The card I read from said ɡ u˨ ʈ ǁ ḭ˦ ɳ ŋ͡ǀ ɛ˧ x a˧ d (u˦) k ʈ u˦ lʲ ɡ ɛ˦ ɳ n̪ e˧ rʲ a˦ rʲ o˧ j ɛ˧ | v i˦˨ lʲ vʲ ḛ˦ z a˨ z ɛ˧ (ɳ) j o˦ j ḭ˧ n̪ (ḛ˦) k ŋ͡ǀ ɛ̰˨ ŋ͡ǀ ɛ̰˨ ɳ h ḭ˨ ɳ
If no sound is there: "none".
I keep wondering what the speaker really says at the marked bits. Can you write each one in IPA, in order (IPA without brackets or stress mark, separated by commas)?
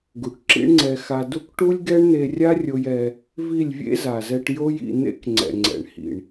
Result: u˦, ʈ, ḛ˦